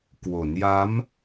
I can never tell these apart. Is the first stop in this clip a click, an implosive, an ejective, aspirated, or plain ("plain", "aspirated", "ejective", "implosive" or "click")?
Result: plain